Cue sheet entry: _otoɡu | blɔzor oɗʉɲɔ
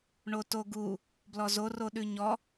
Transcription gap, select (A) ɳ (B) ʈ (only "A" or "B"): A